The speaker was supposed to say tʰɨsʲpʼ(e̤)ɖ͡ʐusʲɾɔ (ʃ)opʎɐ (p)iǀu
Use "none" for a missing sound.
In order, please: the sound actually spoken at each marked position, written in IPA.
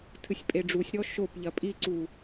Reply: e, ʃ, pʼ

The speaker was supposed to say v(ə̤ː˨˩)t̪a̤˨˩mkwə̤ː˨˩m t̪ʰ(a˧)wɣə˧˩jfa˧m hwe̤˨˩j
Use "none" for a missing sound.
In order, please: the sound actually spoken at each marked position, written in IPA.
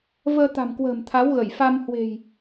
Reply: əː˧, a˨˦

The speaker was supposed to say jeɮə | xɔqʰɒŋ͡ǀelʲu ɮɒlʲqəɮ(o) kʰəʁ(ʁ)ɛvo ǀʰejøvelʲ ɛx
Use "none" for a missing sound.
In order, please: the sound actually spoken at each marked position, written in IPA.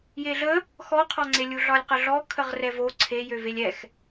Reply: ɔ, r

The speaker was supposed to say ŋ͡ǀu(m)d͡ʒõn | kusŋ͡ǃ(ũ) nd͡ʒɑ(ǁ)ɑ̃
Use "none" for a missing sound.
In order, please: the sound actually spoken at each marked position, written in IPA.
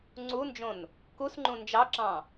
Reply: n, ũ, ǁ

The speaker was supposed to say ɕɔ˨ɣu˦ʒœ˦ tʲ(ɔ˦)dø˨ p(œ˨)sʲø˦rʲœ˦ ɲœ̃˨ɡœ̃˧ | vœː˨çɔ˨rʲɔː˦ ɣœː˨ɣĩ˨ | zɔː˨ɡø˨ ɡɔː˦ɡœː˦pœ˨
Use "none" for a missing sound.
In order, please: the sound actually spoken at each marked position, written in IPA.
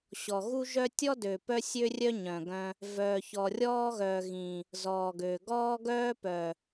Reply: ɔ˦, œ˦

